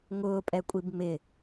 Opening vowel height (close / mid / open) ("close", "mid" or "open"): close